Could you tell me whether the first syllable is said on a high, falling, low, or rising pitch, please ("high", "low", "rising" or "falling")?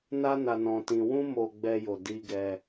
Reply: high